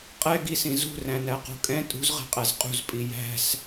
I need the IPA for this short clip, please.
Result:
qʼ ɛ ɡ i s ĩ z ṳ r æ̃ n æ q ṳ kʼ ɛ̃ tʼ ṳ z ʁ ɛ̤ qʼ æ z qʼ ṳ z pʼ i j æ̤ s

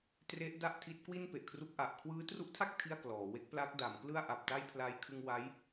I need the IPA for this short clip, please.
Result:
t r e˦˥ ʔ d a˥˩ ʔ tʰ i˦˥ t̚ k w i˥˩ n p e˨˩ ʔ kʰ r u˦˥ k̚ ʔ a˨˩ ʔ kʰ w ɯː˦˥ t r u˦˥ ʔ tʰ a˥˩ k̚ tʰ i˥˩ a̯ k l ɔː˩˦ w e˦˥ k̚ p l a˦˥ k̚ d a˩˦ m k l ɯ˥˩ a̯ ʔ a˨˩ p̚ t a˥˩ j pʰ l a˦˥ j kʰ ɯ˧ ŋ w a˦˥ j

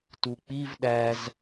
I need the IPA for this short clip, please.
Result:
t u k͡p i v ɗ æ z

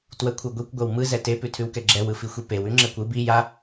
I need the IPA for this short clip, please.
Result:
t w ə kʷʰ ɯ ɡʷ i kʷ ɡʷ ɛ w m ɯ z ɛ t e p ʉ tʰ ʉ w k ɛ ɡ͡ǁ ɛ w ɯ f i xʷ i p e w ʉ ŋ͡ǁ ɛ kʷ ɯ b i j a

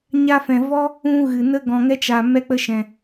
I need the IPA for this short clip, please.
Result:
ɲ a˧ f ɛ̃˨ v ɔ˦ | ũ˧ ɣ ɨ˨ n ə˦ ɡ ɔ̃˨ ŋ ɛ˧ t͡ʃ a˨ m ɛ˧ k͡p ə˧ ʃ ɛ̃˨

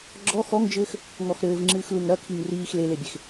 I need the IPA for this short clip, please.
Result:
ɡ͡ǁ ɔ x ɔ ŋ d͡ʒ ɘː x | ŋ ɔ x ɾ ɘː v ŋ͡ǁ ɨː x l u ŋ ɾ ɐ kʰ i ŋ r iː x l e l e bʲ e x

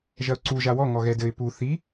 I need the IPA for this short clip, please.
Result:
ʒ ɐ ʊ̯ ǀ u ʒ a w ɔ ŋ ɔ ɣ ɛ d ɘ ɪ̯ p u θ i

